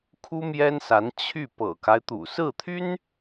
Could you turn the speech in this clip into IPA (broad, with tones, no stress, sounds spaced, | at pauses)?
kʰ u˥ m j ɛ˥ n s a˧˥ n t͡ɕʰ y˥˩ p ɤ̰˨˩ k a˦ ɪ̯ t̪ ṵ˨˩ s ɹ̩˥˩ t̪ʰ y˥ n